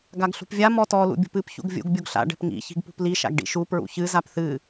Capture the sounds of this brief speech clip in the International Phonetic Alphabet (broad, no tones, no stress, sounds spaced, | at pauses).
ɡ a ɡ ɬ ṳ p vʲ a m ɔ t ɔ l ṵ bʲ ṳ p ɨ p ç ṵ ɡ vʲ ṵ ɡ bʲ u ɡ ɬ a̰ ɖ ɛ̤ p ŋ ḭ ç i̤ ɡ p ṳ p l i ʃ a̰ ɡ ɖ ḭ ʃ u p ɹ ṵ ç ɨ z a p θ ɨ